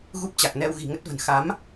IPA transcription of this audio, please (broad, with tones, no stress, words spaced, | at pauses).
ɣu˦˥p̚t͡ɕa˨˩k̚ nɛ˧wɣi̤˨˩ŋə˦˥t̚və̤˨˩n xa˨˦m